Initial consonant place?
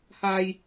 glottal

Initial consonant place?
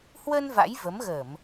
glottal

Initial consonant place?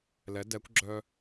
alveolar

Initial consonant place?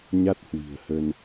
palatal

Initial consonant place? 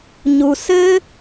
palatal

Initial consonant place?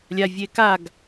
alveolar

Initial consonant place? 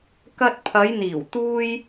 velar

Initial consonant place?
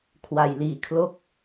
velar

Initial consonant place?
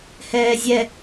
glottal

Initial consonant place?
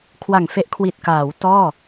velar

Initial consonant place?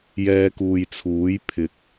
palatal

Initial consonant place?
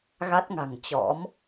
velar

